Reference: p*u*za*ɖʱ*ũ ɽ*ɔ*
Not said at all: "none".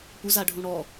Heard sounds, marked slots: u, ɖʱ, ɔ

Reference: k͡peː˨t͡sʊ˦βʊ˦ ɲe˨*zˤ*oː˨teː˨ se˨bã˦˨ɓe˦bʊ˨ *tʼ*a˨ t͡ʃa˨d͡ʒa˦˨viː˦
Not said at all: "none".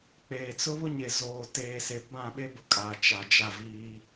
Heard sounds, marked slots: z, kʼ

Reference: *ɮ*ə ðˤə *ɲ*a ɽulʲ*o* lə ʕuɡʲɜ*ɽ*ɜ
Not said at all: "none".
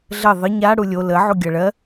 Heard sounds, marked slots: ɮ, ɲ, o, ɭ

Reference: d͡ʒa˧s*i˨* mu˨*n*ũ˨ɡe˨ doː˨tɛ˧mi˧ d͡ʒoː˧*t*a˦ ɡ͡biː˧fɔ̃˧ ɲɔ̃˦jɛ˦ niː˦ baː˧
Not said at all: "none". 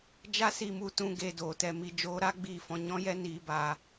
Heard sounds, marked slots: i˨, t, ɾ

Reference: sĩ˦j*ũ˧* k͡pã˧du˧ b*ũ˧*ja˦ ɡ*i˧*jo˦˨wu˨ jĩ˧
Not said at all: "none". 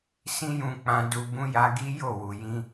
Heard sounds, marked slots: ũ˧, ũ˦, i˦

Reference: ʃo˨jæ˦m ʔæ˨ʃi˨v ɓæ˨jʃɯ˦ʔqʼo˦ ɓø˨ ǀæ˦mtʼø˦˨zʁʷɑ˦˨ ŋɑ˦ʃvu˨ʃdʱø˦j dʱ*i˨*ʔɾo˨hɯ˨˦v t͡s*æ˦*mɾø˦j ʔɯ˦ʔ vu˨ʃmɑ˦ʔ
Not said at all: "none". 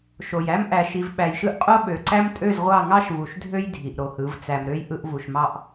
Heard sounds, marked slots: i˨, æ˨

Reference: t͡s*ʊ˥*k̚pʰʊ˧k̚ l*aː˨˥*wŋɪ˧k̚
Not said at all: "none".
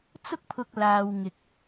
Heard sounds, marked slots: ʊ˥, aː˧

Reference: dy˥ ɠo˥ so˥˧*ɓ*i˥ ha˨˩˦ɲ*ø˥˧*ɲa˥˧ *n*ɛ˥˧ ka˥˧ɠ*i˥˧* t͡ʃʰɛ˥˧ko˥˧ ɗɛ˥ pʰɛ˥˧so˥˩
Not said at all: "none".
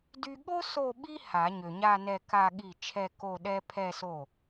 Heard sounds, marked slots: ɓ, ø˨, n, i˥˩

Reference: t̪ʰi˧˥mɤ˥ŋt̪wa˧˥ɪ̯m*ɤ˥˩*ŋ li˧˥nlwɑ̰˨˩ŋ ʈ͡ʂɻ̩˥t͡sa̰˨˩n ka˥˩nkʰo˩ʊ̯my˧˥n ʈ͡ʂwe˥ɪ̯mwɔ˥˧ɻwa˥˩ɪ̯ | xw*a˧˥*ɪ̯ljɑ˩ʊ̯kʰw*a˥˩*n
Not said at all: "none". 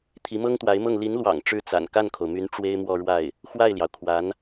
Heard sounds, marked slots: ɤ˥˩, a˥˩, a˧˥

